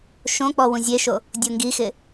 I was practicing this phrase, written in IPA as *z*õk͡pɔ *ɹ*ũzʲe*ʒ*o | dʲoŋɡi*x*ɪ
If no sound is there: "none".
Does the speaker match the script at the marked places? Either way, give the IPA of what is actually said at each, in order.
ʃ, w, ʃ, x

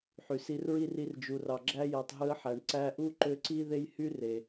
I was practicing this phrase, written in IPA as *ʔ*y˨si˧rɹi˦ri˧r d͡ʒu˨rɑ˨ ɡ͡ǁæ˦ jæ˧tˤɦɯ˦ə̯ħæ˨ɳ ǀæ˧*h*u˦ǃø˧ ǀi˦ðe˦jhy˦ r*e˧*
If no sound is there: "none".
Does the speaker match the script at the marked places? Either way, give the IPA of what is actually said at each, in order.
ħ, ʔ, e˨

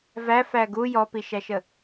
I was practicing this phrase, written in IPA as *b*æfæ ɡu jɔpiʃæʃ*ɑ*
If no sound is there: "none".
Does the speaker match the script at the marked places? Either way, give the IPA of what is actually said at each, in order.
v, ə

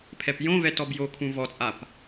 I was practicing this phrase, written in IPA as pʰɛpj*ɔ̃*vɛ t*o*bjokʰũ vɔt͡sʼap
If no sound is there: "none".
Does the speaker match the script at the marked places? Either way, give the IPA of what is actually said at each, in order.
õ, ɔ

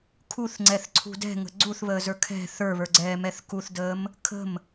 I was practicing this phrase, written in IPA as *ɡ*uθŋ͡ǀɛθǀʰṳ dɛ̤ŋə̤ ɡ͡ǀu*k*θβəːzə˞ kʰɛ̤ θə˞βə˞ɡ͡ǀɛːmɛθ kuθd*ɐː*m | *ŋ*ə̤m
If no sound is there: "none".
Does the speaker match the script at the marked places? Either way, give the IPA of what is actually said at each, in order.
kʰ, none, əː, kʰ

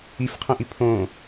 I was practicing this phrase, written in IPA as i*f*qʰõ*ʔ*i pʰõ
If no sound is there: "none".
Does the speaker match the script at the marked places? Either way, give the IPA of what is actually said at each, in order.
f, ʔ

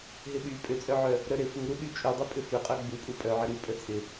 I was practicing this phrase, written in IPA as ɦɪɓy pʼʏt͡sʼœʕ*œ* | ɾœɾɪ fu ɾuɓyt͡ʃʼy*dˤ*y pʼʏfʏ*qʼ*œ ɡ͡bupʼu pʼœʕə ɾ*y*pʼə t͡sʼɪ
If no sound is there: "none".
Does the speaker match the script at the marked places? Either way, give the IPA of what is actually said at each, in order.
œ, dˤ, qʼ, y

